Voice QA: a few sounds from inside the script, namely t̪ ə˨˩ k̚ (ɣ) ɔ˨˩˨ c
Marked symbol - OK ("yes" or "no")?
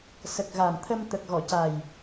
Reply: yes